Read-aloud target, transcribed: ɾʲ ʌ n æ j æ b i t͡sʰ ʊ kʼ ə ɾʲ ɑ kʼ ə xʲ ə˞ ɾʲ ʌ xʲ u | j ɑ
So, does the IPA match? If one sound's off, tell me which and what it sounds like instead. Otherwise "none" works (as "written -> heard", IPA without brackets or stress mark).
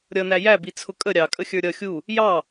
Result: none